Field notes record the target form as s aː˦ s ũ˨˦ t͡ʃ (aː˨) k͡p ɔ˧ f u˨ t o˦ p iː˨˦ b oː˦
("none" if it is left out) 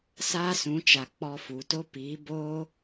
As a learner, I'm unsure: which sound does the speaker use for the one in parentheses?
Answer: a˨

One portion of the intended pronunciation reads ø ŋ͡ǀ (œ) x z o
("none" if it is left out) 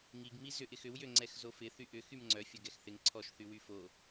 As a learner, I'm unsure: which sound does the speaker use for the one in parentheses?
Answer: ɛ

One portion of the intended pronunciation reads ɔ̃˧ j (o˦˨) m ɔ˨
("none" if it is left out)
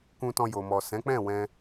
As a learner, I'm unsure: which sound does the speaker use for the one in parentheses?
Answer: o˨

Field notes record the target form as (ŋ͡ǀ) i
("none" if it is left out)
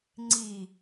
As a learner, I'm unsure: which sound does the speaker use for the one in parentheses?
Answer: ŋ͡ǀ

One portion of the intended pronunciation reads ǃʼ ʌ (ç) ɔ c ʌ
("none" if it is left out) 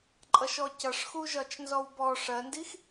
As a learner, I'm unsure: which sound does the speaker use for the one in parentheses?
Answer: ʃ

